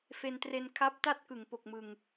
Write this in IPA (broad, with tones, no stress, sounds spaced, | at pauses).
f e˧ n t r e˧ n kʰ a˦˥ p̚ t a˥˩ t̚ k ɯ˩˦ ŋ p o˨˩ k̚ m ɯ˨˩ ŋ